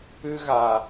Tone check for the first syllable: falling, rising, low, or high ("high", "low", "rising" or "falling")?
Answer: high